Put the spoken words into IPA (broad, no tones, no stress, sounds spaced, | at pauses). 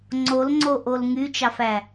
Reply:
ŋ͡ǀ o l ŋ͡ǀ o ʔ o l ŋ y t͡ʃ ɑ f æ